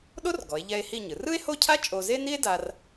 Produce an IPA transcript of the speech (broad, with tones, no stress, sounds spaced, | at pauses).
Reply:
ɗ o˥ r ɡ ɔ˩˧ e̯ ʎ ɛ˧ e̯ h i˥˧ ɲ ɯ˩˧ r ɯ˥ e̯ h o˥˧ cʰ a˥ t͡ʃʼ o˧ z e˥ n i˥ e̯ d a˧ r